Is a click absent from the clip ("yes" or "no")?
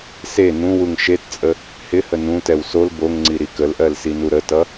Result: no